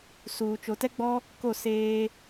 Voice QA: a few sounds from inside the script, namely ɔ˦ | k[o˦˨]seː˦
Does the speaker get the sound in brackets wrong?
no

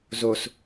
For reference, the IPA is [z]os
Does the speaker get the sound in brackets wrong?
no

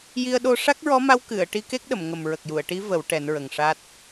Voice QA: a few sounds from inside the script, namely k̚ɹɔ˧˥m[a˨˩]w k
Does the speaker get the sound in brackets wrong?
yes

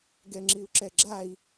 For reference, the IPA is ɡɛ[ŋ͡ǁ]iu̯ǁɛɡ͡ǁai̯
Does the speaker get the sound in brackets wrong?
no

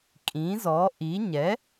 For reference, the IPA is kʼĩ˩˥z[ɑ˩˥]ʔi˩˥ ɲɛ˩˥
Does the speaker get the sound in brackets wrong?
yes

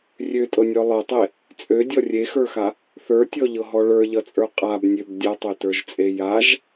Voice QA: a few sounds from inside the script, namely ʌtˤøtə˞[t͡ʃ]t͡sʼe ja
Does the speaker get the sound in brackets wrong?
yes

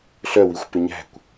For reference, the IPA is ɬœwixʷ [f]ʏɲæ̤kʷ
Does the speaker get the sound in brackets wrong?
yes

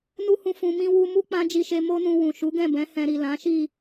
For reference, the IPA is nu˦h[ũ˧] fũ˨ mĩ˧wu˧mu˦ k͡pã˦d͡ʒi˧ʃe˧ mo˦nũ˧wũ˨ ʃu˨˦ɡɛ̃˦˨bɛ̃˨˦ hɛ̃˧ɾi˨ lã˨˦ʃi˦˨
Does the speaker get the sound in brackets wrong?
no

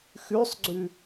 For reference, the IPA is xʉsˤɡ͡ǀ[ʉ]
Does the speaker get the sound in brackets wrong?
no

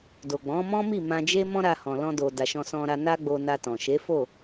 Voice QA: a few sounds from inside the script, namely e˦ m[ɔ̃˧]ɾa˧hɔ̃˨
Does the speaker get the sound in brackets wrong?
yes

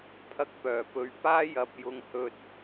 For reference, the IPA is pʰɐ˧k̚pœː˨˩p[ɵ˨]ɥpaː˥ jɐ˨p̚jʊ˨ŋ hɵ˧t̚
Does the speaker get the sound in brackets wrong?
no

